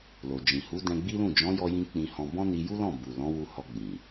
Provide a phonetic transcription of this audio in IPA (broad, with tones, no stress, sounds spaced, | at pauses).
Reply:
l o˨ d͡ʒ ĩ˨ h u˨˦ d ɛ̃˧ ɡ͡b i˦ l ũ˦˨ d͡ʒ ɔ̃˨˦ j ɔ˧ j ĩ˧ k͡p ĩ˧ h ɔ̃˧ b ɔ̃˦ n i˧ j u˦ l ɔ̃˦˨ b u˨ l ɔ̃˨˦ w u˧ h ɔ˧ ɡ͡b ĩ˨